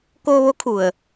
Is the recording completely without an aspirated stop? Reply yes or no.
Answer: no